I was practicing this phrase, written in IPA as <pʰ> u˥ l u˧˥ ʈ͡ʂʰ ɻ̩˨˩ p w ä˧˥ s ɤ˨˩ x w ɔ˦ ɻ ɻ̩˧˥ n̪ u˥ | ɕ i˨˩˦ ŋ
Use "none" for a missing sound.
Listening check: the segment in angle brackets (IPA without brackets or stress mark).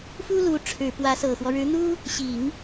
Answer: f